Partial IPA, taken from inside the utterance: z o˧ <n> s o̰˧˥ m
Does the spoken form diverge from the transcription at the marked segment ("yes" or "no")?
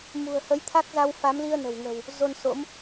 no